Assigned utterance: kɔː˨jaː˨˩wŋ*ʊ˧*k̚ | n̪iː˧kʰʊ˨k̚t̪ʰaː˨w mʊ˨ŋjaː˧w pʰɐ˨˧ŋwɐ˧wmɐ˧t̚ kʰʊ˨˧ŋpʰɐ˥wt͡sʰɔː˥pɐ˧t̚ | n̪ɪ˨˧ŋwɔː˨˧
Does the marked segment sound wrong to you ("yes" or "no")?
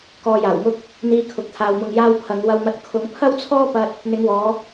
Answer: no